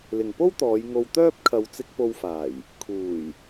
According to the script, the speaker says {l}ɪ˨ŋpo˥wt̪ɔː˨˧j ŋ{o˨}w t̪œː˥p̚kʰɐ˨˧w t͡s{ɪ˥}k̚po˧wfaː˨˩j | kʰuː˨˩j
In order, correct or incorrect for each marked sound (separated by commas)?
correct, incorrect, incorrect